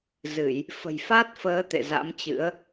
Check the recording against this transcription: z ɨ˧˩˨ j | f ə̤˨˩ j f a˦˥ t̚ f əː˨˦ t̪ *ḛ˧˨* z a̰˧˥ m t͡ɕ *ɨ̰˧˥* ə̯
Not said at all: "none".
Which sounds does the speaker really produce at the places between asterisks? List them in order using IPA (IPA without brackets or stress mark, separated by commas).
ḛ˧˨, ɨ̰˧˥